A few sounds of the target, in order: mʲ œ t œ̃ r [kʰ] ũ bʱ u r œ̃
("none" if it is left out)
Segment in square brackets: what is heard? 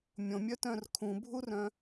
kʰ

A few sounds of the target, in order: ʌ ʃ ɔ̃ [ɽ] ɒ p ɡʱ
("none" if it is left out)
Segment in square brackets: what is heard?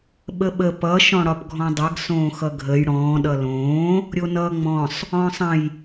ɽ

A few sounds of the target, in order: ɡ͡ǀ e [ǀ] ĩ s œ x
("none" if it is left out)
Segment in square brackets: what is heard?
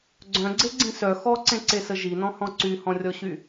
ɡ͡ǀ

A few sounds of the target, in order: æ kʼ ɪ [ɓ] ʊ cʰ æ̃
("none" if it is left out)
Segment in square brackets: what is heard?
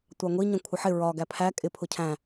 pʰ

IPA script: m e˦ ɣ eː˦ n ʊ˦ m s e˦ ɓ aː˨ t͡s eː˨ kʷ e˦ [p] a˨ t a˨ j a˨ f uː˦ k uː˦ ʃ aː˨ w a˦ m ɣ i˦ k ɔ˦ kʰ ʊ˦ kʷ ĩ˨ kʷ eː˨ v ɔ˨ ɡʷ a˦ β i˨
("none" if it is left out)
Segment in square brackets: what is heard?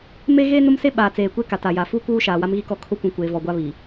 k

